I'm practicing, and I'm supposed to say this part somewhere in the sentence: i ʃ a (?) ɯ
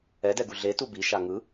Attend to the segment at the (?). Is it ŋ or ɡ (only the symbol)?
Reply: ŋ